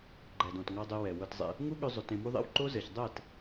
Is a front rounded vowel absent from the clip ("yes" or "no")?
no